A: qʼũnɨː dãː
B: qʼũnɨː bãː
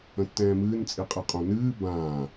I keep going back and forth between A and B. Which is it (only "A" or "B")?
B